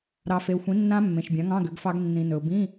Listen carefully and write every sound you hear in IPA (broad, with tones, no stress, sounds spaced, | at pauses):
ɾ ɑ˨ f e˨ ʊ̯ xʷ ĩ˩˥ nː ã˦˥ mː ẽ˨ ʃ bʲ ã˩˥ ŋ ɑ̃˧˥˧ ɡ ʏ˩˥ ɡ f ɑ˦˥ ɡ nː ĩ˨ n ɵ˨ ʊ̯ b ĩ˧˥˧